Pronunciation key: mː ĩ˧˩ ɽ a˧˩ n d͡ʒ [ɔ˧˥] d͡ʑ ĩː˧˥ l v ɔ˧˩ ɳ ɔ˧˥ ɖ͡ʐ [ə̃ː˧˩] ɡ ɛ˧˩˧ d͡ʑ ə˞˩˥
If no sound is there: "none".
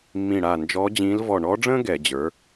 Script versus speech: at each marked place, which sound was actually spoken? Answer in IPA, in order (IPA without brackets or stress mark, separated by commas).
ɔ˧˥, ə̃ː˥